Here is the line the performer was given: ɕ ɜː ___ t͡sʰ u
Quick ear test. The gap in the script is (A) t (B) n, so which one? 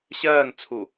B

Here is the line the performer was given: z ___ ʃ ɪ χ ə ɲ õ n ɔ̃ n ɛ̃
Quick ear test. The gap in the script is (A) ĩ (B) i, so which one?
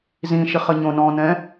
A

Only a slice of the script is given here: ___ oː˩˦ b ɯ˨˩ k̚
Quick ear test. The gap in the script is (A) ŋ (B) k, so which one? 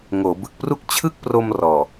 A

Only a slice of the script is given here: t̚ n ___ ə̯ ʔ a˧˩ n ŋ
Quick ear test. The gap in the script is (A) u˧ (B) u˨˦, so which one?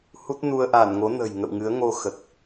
A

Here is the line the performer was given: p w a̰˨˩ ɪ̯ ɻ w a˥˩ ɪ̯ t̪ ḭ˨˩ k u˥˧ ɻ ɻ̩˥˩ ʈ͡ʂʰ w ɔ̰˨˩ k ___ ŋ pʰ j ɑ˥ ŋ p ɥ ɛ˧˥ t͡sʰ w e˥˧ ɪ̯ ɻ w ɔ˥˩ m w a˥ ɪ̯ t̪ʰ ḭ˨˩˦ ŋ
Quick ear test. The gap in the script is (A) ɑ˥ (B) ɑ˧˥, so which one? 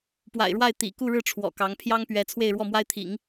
B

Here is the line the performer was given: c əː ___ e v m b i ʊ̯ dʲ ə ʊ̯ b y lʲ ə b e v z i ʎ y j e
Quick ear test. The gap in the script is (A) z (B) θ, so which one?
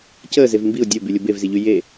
A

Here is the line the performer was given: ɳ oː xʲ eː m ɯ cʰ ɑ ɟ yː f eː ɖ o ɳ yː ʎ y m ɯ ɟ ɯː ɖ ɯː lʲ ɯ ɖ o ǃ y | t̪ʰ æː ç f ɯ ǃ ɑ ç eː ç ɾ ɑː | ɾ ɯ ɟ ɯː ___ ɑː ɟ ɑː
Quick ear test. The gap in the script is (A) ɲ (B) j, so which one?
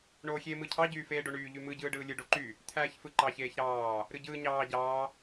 A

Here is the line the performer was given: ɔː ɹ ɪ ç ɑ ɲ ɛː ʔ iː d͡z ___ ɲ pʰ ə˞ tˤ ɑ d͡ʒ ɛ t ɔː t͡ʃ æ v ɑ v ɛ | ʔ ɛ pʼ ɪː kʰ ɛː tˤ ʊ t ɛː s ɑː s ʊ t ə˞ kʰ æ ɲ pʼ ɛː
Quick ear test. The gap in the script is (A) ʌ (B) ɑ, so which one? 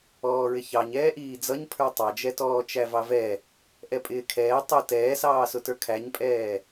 A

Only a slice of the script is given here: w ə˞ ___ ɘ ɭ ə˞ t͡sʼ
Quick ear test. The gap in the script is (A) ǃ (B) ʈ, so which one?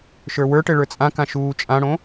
B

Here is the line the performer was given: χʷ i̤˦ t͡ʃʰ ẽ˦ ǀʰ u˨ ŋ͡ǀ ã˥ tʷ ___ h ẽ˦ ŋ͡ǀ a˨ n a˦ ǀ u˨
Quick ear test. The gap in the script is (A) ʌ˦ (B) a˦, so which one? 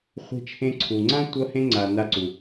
A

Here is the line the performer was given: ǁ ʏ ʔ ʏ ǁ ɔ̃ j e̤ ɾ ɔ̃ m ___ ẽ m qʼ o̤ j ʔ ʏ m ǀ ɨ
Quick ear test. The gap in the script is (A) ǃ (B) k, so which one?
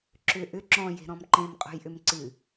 A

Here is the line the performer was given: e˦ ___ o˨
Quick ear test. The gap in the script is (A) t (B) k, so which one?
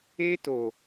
A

